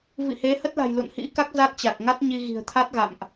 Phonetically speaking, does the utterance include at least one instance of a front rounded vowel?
no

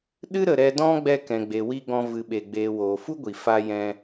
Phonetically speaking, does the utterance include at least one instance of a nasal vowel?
yes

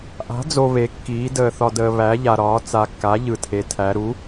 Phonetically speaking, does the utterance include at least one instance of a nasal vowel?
no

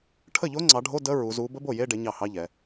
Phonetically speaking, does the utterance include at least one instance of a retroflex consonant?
yes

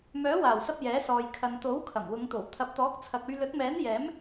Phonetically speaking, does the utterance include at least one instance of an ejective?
no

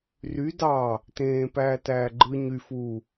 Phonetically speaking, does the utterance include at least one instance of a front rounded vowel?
yes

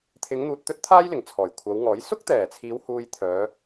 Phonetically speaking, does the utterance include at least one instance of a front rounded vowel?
yes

